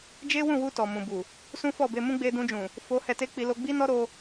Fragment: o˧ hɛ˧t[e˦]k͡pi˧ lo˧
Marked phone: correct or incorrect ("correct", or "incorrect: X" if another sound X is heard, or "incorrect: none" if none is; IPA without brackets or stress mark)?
correct